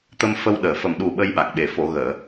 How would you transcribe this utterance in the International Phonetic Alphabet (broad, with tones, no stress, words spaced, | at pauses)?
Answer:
t̪ə˧mfə˧wɗəː˨˩ fə˨˩mɗu˨˩ ɓə˧jɓa˨˩k̚ɓe˨˩ fo˨˩˨ɣəː˨˩˨